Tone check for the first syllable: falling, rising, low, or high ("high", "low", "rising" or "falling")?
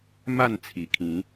falling